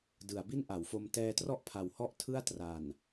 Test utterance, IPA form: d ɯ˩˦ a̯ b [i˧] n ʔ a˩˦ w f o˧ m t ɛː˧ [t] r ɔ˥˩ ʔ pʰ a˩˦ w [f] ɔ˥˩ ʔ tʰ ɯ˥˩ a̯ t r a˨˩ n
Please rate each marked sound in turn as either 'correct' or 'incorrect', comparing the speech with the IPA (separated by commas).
incorrect, correct, incorrect